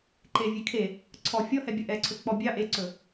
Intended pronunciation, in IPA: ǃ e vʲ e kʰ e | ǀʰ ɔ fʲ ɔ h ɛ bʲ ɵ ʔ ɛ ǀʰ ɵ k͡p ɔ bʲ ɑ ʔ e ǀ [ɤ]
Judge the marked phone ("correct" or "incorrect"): incorrect